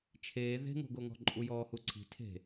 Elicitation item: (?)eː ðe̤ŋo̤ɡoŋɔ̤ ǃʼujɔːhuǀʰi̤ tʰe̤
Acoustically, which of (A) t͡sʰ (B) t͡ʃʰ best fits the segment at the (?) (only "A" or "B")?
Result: B